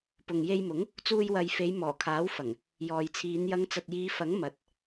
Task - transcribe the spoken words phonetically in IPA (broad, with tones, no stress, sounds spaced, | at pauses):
p ʊ˨ ŋ j e˧ j m ʊ˨˥ ŋ | t͡s uː˧ j w ɐ˨ j f e˨˧ j m ɔː˨˩ kʰ aː˨˥ w f ɐ˨˩ ŋ | j ɔː˨ j t͡sʰ iː˨˧ n j ɐ˨˧ ŋ t͡s ɐ˨ t̚ j iː˨˧ f ɐ˨˥ ŋ m ɐ˨ t̚